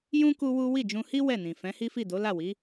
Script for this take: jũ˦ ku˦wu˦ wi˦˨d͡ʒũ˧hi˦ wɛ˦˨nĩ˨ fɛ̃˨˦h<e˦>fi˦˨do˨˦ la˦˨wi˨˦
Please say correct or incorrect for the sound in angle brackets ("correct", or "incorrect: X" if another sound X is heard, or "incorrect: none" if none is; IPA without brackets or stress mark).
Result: incorrect: i˦